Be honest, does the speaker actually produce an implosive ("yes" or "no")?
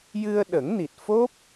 yes